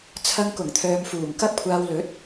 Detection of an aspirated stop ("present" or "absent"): present